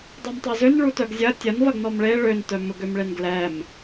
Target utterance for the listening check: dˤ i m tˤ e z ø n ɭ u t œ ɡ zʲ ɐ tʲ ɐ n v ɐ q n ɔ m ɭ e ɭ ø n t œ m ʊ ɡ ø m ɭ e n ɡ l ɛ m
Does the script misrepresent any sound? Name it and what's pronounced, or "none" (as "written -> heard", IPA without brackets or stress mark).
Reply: q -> ɡ